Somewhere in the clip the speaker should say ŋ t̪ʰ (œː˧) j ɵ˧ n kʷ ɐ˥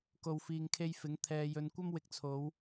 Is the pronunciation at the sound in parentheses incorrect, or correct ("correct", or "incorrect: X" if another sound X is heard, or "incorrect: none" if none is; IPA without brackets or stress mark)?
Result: incorrect: ɛː˧